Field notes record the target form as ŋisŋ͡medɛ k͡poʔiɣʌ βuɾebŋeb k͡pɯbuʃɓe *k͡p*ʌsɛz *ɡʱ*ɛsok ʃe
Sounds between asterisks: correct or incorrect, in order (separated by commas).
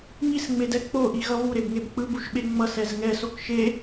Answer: incorrect, incorrect